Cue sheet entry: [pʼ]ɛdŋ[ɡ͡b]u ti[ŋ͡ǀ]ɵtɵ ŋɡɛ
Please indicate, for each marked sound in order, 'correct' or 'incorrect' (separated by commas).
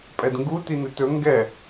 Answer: correct, incorrect, incorrect